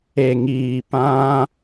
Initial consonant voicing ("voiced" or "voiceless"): voiced